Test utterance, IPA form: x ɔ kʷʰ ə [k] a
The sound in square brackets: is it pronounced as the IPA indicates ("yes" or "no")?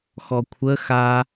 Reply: no